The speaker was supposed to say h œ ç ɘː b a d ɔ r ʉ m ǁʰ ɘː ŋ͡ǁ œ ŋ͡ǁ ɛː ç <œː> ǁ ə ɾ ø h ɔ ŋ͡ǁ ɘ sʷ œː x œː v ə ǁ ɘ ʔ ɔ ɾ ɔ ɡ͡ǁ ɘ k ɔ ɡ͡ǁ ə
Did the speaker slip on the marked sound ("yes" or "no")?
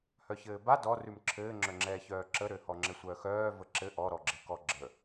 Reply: no